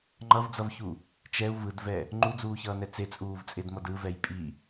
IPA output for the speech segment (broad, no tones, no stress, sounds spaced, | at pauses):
ŋ͡ǃ ʌ v d͡z ʌ v ç u | t͡ʃ ɛ u̯ v ɯ d v ɛ | ŋ͡ǃ u d͡z uː ç ʌː n ɛ t͡s e t͡sʼ uː v t͡sʼ e d m ʌ d ɯ v ɛ j pʼ i